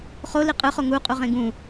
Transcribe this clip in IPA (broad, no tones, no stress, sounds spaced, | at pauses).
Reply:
χ o l i qʼ ɯ χ o ŋ u qʼ u ʁ ẽ ɡ ũ